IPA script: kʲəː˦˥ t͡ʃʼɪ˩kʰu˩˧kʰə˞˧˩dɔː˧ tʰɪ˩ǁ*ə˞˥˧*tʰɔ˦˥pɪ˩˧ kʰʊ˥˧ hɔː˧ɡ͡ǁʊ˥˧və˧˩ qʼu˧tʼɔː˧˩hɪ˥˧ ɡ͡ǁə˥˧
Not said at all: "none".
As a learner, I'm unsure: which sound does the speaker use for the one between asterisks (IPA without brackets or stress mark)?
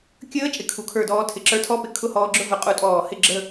ə˞˧